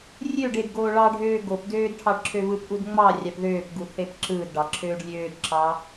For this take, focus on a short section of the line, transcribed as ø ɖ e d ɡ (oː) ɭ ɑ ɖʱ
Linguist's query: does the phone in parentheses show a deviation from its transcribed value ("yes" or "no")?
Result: no